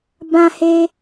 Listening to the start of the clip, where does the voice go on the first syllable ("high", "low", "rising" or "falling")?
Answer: high